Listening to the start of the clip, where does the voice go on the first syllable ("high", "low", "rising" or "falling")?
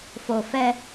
low